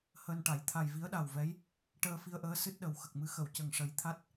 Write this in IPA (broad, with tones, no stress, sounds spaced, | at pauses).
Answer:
h əː˧ n ʈ a˨˩˦ j t̪ʰ a˨˩ j v i˧˥ ə̯ ɗ a˨˩ w v ɛ˧˥ j | ʈ əː˧ f i˧ ə̯ ʔ əː˧˥ s ɨ˦˥ t̚ ɗ ə˨˩ w x ə˨˩ k̚ m ɨ˧ x ə˨˩˨ w c ə˨˩ ŋ ʂ ə˨˩˦ j t̪ʰ a˦˥ t̚